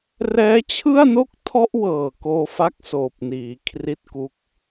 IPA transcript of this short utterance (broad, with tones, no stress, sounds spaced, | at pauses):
r ɛː˦˥ t͡ɕʰ ɯ˥˩ a̯ n o˥˩ k̚ tʰ ɔ˦˥ ʔ w ɤː˨˩ k oː˧ f a˦˥ k̚ s oː˨˩ p̚ n iː˩˦ kʰ r i˥˩ t̚ k u˦˥ k̚